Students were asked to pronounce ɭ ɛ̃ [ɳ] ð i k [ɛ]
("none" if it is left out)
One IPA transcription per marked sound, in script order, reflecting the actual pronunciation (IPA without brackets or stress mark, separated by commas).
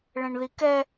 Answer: ɳ, ɛ